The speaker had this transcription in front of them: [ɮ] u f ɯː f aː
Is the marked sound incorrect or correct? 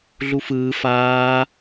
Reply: correct